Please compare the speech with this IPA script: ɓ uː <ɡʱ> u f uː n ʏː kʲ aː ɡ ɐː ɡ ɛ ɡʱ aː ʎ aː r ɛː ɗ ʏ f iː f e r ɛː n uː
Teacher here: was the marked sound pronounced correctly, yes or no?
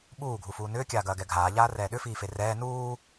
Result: yes